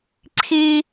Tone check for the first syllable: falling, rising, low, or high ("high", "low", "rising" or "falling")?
high